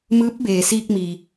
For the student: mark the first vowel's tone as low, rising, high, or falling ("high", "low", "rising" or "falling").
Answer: rising